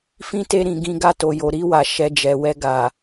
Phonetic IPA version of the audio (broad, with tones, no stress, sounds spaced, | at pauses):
f ĩ˦ t e˧ ɾ ĩ˨ ɡ ĩ˧ ɡ a˧ t o˨ j o˨ ɾ i˧ w a˨ ʃ ɛ˧ d͡ʒ ɛ˨ w ɛ˧ ɡ a˨